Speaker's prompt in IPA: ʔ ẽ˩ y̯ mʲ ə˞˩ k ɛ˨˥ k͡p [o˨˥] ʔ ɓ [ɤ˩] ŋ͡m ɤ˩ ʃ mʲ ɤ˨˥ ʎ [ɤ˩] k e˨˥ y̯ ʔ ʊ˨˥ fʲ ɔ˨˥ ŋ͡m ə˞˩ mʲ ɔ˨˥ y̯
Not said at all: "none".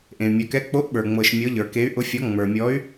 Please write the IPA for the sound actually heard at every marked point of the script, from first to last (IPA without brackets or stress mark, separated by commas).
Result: o˨˥, ə˞˩, ə˞˩